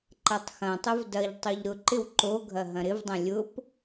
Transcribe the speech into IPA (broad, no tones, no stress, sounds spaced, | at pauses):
ǃ ɐ tˤ x ɐ̃ tˤ ʊ v d ɐ ʎ tˤ o ʎ ɾ ʊ ǃ ɪ w ǃ o ɡʱ ɐ ɦ ɐ̃ ɾ ɪ v dˤ ɐ̃ lʲ ʊ p